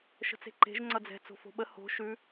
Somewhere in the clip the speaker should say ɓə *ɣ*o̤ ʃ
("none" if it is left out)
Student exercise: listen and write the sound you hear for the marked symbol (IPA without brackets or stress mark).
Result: h